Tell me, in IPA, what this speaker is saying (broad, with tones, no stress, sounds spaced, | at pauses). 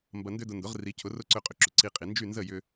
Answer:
m b ɐ˧ n d ʏ˥ d ʊ˧ n d ʊ˩˥ ʁ r i˩˥ cʰ ʊ˩˥ r ʊ˥ ǀ ø˧ qʼ ʏ˩ ǁ ʏ˩ ǀ i˧ qʼ i˩ n d͡ʒ y˥˩ n z ə˥˩ j ʏ˧